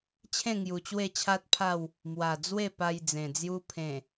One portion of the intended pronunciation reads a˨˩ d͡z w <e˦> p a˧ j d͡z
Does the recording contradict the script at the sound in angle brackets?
yes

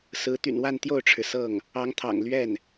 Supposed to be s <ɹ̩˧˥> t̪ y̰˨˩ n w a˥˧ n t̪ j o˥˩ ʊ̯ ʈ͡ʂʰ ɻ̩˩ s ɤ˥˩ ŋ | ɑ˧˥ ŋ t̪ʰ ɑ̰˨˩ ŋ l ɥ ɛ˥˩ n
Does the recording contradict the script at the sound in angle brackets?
no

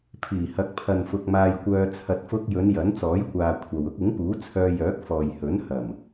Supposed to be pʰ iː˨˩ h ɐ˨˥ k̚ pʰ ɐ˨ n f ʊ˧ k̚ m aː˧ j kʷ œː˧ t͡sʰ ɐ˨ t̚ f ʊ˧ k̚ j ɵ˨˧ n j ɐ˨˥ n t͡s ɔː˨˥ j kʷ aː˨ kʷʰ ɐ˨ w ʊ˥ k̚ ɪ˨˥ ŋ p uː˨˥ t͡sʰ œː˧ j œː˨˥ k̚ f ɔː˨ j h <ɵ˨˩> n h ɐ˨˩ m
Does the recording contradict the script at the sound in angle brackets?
yes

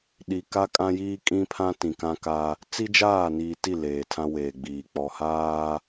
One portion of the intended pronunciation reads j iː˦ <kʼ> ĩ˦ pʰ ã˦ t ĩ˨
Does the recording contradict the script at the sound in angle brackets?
no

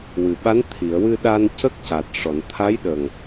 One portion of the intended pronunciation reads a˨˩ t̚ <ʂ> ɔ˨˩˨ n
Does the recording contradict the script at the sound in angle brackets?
no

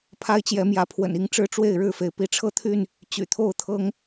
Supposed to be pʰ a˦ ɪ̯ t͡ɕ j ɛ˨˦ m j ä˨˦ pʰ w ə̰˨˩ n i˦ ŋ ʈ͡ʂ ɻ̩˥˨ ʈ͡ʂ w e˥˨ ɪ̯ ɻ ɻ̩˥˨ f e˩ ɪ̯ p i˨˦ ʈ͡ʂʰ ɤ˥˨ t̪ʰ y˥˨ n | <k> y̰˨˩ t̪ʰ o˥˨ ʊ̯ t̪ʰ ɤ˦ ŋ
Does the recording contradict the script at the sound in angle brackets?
yes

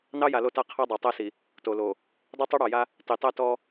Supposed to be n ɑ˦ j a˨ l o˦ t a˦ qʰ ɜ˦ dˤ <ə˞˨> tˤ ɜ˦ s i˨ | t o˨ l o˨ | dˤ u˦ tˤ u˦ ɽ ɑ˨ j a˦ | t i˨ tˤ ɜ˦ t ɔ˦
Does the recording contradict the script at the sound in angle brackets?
no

